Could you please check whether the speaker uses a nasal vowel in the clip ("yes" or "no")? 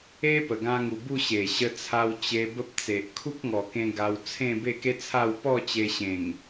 yes